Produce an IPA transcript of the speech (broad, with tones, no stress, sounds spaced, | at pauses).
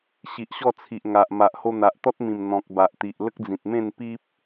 ɕ i˨ ʔ ɕ ɔ˥˧ t͡sʰ i˨ ʔ ŋ a˨ ʔ m a˨ ʔ h o˧ n̪ a˨ ʔ t̪ ɔ˦ t̚ m ĩ˨˩ m n̪ ɔ̃˨ k̚ b a˨ ʔ t̪ i˨ ʔ l ə˦ k̚ d͡z ĩ˨ t̚ m ẽ˥˧ n p i˦ p̚